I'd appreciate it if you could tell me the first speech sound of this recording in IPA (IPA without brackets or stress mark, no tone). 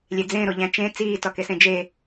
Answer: lʲ